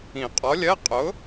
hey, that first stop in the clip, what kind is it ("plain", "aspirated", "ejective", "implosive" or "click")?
ejective